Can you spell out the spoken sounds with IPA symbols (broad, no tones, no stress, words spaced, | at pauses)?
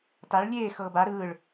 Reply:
taɭ lʲeː xɤːba ɾɯːɭ